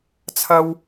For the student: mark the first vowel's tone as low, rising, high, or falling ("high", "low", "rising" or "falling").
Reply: high